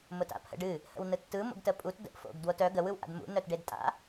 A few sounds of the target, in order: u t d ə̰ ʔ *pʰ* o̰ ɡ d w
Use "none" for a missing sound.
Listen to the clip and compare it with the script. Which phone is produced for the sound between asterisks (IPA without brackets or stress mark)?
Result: f